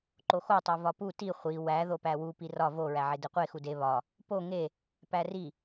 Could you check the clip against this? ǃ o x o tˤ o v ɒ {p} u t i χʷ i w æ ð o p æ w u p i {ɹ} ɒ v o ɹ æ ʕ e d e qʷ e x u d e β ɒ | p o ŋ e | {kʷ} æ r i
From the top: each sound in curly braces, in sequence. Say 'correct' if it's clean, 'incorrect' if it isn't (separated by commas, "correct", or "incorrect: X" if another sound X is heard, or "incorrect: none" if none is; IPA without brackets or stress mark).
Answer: correct, incorrect: r, incorrect: p